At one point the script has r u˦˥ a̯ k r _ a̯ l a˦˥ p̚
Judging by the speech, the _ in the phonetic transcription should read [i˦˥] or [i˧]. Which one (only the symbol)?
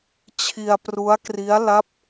i˦˥